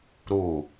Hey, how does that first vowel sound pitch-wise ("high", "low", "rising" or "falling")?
falling